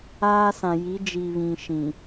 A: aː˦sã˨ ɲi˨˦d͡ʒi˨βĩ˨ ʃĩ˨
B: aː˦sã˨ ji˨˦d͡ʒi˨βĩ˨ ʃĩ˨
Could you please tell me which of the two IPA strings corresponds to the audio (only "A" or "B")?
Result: B